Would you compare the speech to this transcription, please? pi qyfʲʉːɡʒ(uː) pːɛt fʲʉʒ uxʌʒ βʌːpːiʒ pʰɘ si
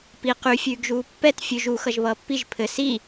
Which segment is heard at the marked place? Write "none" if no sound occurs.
uː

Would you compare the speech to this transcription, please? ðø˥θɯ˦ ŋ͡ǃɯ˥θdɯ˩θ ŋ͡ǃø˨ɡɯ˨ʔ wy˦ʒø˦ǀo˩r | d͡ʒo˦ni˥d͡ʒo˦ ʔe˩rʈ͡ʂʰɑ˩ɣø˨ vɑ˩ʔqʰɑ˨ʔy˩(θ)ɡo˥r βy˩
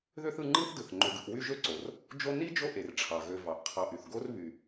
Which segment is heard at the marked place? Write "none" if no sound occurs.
θ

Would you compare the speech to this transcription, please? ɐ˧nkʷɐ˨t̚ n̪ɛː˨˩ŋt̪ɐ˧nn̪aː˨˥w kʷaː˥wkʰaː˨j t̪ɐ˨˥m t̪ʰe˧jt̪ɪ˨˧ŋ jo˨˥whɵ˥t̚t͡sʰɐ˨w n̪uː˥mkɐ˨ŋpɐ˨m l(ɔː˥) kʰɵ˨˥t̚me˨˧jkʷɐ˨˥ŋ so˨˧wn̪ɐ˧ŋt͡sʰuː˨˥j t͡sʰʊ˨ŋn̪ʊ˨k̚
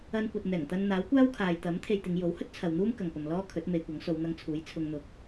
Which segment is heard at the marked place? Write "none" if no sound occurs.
ɔː˥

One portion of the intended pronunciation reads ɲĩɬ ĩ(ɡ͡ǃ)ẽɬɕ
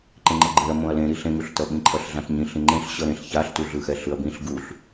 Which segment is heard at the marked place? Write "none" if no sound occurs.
ŋ͡ǃ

